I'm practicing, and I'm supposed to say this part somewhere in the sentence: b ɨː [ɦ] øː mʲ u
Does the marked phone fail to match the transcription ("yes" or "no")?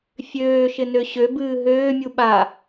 no